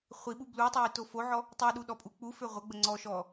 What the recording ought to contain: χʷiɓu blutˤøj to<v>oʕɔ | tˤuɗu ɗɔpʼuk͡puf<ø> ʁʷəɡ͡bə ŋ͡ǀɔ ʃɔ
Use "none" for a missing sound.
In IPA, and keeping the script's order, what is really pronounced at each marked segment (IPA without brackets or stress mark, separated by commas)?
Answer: f, ø